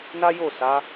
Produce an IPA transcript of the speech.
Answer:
n a˦ j o˦˨ s a˨˦

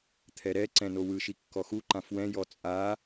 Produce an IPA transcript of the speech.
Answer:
t̪ʰ ɛ ɾ ɛ ǀ ɛ̃ n o w ɯ ʃ i kː ɔ x u ǃ ã f w ɛ̃ j ɔ t͡sʼ a

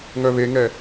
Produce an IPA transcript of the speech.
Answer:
ŋ œ β e ŋ ɛ

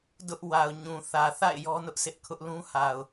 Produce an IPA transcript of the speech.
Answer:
d ʊ˦ ʔ w a˨ ʊ̯ ɲ ũ˨ θ ä˨ θ a̰˦˨ ɪ̯ j ɔ˦ n ʊ˦ ʔ sʰ ɪ˦ ʔ kʰ ʊ˦ ʔ l ũ˦ h a˨ ʊ̯

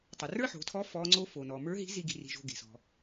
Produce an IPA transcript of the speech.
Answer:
tˤ ə˩ r ə˞˥ ħ o̤˩˧ tʰ ɔ˧˥ f ɔ˧˥ ŋ͡ǀ o˥ f o˩ n ɔ˩ m ə˞˧˥ ɦ i̤˧˥ z i˥ ɡ i̤˧ r i̤˧ ʒ o̤˧ ɡ e̤˩ s ɔ̤˩

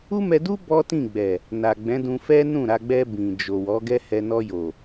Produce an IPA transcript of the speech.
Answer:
u˦ m ɛ˧ d u˦ b ɔ˦ t ĩ˦˨ ɡ͡b ɛ˨ | n a˨ ɡ͡b ɛ̃˨˦ d ũ˧ f ɛ˦ n ũ˦˨ ɾ a˧ ɡ͡b ɛ˧ b ĩ˨ d͡ʒ o˨ w ɔ˨˦ ɡ ɛ˦ h ɛ˧ n ɔ˧ j o˨

